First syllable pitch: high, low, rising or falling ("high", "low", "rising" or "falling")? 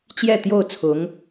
falling